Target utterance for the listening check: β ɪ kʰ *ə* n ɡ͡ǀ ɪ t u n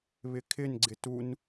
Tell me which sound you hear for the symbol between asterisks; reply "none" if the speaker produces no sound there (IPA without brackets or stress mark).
ɪ